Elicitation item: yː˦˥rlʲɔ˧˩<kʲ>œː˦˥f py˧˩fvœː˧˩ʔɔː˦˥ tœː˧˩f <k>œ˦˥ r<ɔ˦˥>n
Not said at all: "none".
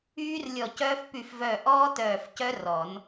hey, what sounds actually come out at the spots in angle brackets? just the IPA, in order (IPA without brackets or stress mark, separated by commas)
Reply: c, c, ɔ˨˩˦